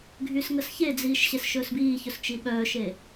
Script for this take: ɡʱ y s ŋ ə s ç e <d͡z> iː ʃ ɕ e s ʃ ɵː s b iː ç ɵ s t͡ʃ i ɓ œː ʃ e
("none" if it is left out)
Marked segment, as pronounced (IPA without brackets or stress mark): d͡z